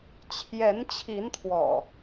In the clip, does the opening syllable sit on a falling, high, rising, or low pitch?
rising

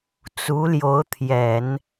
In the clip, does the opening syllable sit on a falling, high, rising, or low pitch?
rising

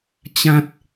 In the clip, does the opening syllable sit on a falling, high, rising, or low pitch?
high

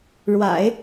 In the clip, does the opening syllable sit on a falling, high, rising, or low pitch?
low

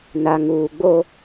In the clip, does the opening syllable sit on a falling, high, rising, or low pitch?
low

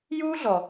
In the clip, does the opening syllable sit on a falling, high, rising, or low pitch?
high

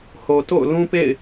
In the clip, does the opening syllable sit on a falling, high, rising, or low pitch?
low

